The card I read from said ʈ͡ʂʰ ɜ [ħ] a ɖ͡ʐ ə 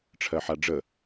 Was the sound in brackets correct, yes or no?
yes